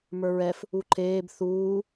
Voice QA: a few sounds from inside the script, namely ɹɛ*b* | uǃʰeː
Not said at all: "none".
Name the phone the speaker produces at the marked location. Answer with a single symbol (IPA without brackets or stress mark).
f